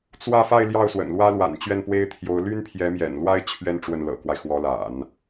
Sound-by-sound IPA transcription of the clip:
t͡swä˥˧fa˥˧ɪ̯ ljɑ˥˩ʊ̯swə̰˨˩nlwä˥ lwa̰˨˩n t͡ɕɥɛ˥˩npwe˥ɪ̯t̪ʰjo˧˥ʊ̯ ly˥npʰjɛ˧˥mjɛ̰˨˩nlwa˥ɪ̯ t͡ɕʰɥɛ˥˧n ʈ͡ʂwə˥˩nlɤ̰˨˩kwa˦ɪ̯ xwɔ˧˥la̰˨˩˦n

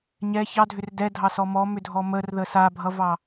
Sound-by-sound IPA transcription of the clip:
ɲɛ çɑdʱʏr dɛdʱɑsɔ mɔmʏdʱɔ mərðə sabʱʌvɑ

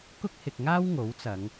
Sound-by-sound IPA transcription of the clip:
kʊ˥k̚hɪ˨k̚ŋaː˥w ŋo˨˥wt͡sɐ˨˧ŋ

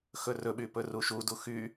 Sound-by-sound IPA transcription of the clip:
xɵrɵɓy pɵruʃudu xy

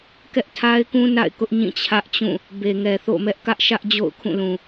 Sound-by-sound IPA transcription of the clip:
kɛ˦ʔtʰa˦ɪ̯kũ˦ na̰˦˨ɪ̯kʊ˦ʔɲĩ˦˨ t͡ɕʰä˦ʔt͡ɕũ˦˨ | be˨ŋɛ˨θo̰˦˨ mɛ˦ʔkä˦ʔʃä˦ʔ d͡ʑo̰˦˨ʊ̯ kʰũ˦˨lũ˨

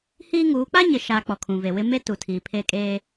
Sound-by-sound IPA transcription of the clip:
hiː˦ŋuː˨˦ k͡pa˦ɲɪ˨ʃaː˨ k͡pɔ˨kʰũ˨ve˨wɪ˦ me˦tu˨ tʰiː˨pʰe˦˨kʼeː˦

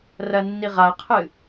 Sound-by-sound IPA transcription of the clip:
rɐnːiʁaqʰɨ

